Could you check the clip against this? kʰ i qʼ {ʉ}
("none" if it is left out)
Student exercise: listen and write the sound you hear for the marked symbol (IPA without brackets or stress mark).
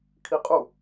u